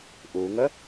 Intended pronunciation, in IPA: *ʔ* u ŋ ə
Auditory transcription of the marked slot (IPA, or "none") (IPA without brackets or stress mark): ʔ